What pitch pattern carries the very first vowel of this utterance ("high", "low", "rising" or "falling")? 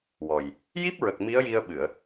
low